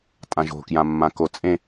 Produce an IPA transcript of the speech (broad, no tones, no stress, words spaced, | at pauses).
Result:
tʼãʒo̤kjãmːã kot͡sʼẽ